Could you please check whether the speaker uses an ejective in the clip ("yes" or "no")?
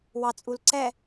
yes